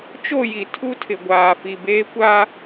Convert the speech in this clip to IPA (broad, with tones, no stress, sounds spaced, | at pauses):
t͡ʃ o˦˨ j i˨ tʰ u˦ tʰ ɪ˨ ɡʷ aː˨ f i˨ b eː˦ kʷ a˦